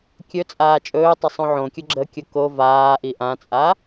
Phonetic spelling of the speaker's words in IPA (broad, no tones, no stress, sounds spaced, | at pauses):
kʲ ɵ t͡sʼ aː t͡ʃʼ ɵː tˤ ə sˤ õ ʕ õ kʲ ʊ ɡ͡ǁ ə kʲ ʊ k o v aː ʔ i ʔ ã t͡sʼ a